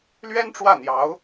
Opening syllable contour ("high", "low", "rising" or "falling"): high